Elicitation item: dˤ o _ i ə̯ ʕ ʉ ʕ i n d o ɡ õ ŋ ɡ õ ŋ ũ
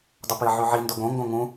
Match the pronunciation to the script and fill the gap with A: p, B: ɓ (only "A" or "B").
A